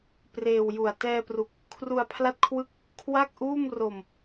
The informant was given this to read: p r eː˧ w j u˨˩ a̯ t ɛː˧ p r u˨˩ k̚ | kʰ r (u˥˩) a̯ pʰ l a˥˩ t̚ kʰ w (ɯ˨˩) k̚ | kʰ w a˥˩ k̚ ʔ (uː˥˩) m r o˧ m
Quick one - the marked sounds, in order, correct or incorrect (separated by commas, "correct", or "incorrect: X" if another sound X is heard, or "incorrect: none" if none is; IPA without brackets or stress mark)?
incorrect: u˧, incorrect: ɯ˥˩, correct